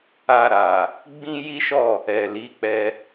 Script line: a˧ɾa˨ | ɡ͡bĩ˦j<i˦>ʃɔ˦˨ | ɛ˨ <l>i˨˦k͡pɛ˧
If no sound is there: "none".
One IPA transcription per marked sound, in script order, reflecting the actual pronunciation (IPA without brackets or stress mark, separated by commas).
i˦, l